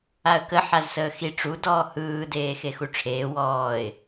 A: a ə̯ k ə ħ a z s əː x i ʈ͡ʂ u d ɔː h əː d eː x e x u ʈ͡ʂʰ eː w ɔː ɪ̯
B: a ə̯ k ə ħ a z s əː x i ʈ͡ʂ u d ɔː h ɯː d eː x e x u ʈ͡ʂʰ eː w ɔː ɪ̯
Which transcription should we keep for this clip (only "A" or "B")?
B